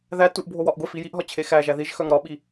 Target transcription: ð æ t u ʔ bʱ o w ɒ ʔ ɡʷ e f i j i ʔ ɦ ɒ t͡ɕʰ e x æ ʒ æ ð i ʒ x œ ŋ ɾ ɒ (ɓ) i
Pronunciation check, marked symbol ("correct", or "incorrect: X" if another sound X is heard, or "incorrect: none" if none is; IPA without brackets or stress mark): correct